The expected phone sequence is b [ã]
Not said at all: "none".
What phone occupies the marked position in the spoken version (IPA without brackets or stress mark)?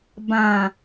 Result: ã